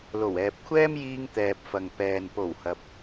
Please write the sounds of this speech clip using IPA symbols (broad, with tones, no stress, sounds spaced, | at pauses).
l o˨˩ w ɛː˨ p̚ kʷʰ ɛː˥ m j iː˧ ŋ t̪ ɛː˨ p̚ f ɐ˨ ŋ p ɛː˨ n p o˨˩ w h ɐ˨ p̚